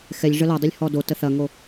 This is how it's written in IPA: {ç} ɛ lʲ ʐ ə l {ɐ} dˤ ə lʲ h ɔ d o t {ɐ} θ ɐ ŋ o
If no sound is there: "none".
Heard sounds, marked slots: x, ɐ, ə

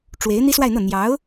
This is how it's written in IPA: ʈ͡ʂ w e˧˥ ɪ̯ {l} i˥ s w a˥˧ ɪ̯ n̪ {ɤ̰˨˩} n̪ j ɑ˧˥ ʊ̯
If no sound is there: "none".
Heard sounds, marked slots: n̪, ɤ˥˩

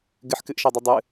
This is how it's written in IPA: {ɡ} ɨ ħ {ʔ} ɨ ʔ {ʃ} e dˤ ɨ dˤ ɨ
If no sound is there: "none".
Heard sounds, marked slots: ɡ, k, ʃ

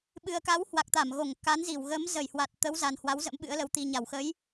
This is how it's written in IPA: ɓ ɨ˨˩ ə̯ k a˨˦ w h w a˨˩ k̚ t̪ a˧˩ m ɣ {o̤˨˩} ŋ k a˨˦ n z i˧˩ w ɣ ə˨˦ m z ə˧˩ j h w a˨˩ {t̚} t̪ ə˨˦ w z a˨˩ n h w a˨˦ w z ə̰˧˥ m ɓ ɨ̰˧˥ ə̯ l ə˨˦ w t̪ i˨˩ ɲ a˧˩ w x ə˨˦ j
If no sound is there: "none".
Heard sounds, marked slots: o˧˩, t̚

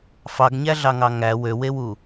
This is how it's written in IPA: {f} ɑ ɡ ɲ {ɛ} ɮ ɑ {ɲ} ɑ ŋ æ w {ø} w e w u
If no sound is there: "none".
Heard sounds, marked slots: f, æ, ŋ, ø

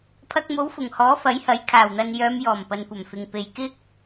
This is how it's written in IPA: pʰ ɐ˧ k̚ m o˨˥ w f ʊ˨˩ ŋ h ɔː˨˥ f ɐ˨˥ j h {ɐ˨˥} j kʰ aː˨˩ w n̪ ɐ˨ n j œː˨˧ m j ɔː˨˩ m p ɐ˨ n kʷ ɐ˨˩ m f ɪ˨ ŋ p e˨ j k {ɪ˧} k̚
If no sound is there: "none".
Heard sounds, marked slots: ɐ˨˥, ɪ˥

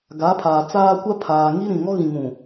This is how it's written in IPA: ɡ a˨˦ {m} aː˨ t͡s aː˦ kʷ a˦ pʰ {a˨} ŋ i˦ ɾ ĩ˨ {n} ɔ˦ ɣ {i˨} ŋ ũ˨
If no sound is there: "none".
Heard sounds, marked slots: pʰ, aː˨, ŋ, ĩ˨

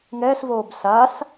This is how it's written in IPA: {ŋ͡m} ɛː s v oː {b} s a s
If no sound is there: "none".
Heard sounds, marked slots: ŋ, b

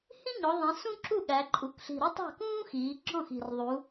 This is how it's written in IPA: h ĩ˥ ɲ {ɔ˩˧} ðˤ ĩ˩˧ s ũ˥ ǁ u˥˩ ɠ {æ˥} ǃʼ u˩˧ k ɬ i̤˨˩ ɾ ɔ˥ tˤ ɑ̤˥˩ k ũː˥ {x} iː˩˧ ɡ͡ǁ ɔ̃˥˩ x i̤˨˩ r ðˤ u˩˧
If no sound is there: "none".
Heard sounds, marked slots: ɔ˩˧, æ˩˧, x

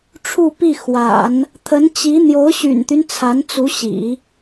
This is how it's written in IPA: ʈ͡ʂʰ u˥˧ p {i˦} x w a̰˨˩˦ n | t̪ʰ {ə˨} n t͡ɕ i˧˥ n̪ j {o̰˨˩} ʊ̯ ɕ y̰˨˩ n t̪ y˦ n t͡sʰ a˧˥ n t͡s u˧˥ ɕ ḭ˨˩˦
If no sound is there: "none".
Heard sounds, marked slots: i˥˩, ə˧˥, o˧˥

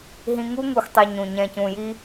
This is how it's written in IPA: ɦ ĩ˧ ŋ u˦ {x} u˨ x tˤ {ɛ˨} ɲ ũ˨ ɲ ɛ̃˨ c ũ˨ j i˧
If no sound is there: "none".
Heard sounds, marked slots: ŋ, ɛ˨

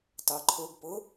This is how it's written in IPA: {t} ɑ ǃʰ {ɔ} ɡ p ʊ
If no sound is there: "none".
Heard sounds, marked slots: t, ʊ

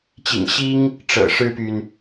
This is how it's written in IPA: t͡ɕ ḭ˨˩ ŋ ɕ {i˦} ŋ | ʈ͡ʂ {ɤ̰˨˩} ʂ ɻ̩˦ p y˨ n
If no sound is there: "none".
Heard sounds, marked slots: i˦, ɤ̰˨˩

